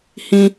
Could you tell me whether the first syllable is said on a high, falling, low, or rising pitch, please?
low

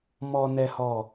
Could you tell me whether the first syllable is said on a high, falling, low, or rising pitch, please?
low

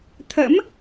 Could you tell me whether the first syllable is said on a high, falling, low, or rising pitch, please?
rising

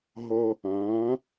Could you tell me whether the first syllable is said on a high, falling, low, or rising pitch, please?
high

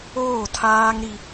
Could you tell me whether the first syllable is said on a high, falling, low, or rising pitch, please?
falling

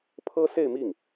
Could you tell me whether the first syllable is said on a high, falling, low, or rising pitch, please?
high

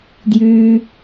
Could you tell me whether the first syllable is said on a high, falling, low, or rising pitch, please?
high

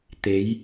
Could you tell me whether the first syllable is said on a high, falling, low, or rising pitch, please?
rising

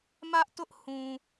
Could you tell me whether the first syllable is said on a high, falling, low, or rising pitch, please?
high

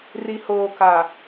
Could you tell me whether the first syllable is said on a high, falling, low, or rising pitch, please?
low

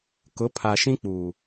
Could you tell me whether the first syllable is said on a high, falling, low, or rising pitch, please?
rising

